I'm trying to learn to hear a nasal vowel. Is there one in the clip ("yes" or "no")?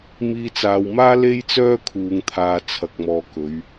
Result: no